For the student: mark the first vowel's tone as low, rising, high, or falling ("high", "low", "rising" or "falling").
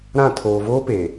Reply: falling